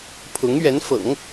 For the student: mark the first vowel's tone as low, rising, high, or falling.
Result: rising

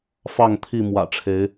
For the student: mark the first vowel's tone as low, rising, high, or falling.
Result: falling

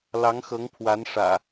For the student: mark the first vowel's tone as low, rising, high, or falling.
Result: rising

